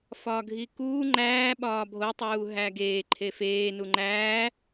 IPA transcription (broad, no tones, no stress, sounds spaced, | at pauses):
f ɒː ɡʱ i k uː ŋ͡ǃ æː ɓ ɒː bʱ o tˤ uː ɦ æ ɡ eː ǃʰ e f eː n u ŋ͡ǃ æː